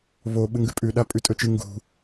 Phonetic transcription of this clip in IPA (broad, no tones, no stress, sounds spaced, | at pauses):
β o ɓ ɨ ŋ ɡ ʉ pʼ ʉ ɗ a pʼ ʉ tʼ ɵ t͡ʃ ɨ ŋ ɡ ṳ